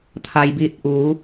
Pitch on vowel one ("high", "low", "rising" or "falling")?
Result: low